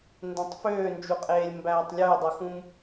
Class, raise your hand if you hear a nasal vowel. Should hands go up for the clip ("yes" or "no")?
yes